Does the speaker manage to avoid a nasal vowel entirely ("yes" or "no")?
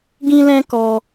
no